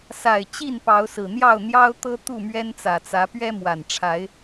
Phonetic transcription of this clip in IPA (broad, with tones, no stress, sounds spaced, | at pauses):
s a˨˩ ɪ̯ t͡ɕ i˥˨ n p ɑ˨˦ ʊ̯ s ɹ̩˨˩ n̪ j ɑ˥˨ ʊ̯ n̪ j ɑ˦ ʊ̯ t̪ ɤ˦ t̪ u˥˨ m ɥ ɛ˦ n t͡s ä˨˩ t͡s ä˨˦ p ɥ ɛ˦ m w a˨˩ n ʈ͡ʂʰ a˨˦ ɪ̯